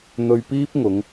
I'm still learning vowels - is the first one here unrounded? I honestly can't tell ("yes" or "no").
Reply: no